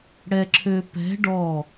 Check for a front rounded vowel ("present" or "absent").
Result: present